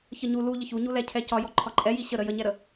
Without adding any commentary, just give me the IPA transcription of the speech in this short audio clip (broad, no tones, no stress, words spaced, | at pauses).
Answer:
çəɲu lu ʎəçuɲu lɛcʰɛcɒ jɔǃʰɒǃʼɛji ɕəɾə jəɲɛɾə